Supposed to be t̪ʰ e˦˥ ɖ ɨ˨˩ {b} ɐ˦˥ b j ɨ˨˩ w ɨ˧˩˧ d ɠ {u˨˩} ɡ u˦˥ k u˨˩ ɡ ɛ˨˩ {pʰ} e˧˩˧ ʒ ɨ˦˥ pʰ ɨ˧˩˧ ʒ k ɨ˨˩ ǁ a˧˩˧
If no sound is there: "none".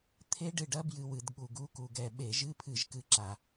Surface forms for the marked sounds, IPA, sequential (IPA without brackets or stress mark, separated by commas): ɖ, u˨˩, ɓ